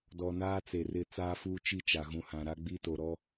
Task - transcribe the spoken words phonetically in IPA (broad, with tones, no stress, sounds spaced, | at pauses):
d ɔ˨ n aː˦ t͡s e˨ r ɪ˦˨ t͡s aː˦ f uː˦ t͡ʃ i˦˨ t͡ʃ a˨ ɣ ũ˨ h ã˨ ɾ a˦ ɡ͡b i˦ t o˨ ɾ ɔ˦